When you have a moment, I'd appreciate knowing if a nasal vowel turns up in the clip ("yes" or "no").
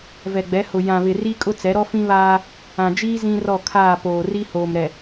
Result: yes